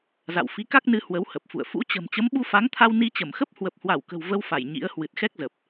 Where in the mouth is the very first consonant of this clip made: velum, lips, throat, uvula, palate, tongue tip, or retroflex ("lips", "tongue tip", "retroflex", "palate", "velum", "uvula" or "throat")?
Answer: tongue tip